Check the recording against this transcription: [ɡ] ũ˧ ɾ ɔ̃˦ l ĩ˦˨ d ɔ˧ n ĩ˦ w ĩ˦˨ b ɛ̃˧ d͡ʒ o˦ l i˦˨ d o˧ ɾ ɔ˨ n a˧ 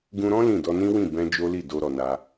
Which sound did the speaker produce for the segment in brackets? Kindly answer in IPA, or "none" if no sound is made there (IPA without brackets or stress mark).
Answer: ɡ